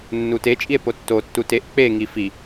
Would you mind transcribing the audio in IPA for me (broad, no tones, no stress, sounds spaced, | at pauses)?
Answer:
nː u t e t͡ʃʼ i e̯ p o tː o tː u t e ʔ k͡p e ŋ i f i